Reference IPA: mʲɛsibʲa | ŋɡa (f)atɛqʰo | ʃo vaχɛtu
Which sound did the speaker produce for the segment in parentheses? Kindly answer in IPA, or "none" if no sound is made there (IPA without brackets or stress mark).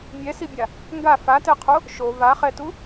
f